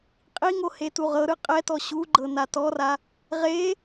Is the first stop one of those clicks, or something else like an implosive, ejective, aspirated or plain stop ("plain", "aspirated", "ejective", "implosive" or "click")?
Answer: ejective